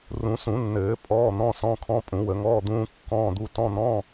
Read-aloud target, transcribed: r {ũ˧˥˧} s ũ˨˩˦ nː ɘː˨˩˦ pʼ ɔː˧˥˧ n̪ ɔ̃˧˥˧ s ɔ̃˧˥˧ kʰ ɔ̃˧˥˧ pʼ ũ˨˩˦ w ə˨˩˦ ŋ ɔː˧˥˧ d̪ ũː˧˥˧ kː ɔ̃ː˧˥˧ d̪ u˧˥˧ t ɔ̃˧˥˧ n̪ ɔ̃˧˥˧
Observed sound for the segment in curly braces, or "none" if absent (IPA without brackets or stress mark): ũ˨˩˦